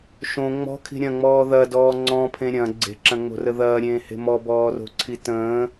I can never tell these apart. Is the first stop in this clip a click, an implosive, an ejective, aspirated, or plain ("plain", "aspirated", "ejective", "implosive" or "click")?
aspirated